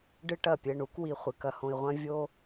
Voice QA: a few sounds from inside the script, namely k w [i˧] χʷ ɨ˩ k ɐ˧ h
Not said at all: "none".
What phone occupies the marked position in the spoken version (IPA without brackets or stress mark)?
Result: i˧